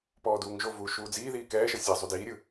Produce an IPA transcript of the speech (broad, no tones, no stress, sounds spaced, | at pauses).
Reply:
p ɔː d uː ŋ ʒ o v uː ʃ uː d͡z iː ð iː k ɛː ʃ ɤ sʲ ɛ zˤ u d iː ɾʲ ɯ